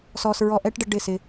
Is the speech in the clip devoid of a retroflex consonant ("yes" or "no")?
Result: no